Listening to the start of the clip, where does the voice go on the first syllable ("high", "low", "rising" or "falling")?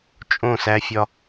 falling